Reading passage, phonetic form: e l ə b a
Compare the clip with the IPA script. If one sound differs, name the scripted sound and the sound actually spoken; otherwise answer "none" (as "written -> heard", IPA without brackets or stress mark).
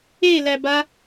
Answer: ə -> æ